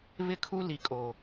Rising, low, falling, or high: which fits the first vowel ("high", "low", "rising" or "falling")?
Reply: falling